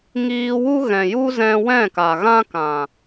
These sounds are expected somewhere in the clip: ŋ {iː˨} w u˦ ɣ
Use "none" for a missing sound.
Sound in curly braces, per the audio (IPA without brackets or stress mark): iː˧